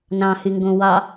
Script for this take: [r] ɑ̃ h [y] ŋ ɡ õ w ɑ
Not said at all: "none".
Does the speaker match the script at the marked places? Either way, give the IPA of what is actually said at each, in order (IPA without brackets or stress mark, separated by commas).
n, y